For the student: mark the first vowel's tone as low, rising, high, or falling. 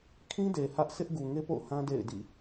high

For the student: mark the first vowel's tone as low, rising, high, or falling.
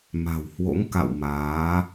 low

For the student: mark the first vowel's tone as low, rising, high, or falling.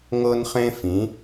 high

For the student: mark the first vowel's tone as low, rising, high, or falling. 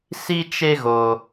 high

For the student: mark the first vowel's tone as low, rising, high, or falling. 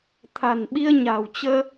low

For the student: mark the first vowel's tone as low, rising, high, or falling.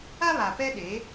high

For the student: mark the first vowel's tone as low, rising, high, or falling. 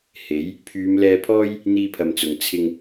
rising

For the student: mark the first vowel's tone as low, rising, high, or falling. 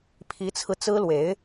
rising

